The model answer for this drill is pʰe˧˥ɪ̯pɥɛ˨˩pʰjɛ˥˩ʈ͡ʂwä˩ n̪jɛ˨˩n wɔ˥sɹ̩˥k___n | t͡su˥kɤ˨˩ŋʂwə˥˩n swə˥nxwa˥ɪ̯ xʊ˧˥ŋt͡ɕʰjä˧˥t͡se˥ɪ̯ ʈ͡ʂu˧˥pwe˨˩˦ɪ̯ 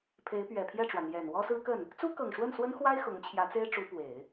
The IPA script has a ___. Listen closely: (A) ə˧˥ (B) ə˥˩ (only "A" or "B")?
B